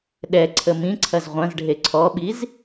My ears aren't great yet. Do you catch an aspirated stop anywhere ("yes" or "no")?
yes